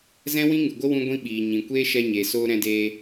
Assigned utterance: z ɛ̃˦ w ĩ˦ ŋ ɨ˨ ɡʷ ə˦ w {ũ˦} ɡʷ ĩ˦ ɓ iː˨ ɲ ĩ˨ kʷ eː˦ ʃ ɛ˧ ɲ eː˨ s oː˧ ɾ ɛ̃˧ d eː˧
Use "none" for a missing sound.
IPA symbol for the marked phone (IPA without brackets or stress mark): ũ˦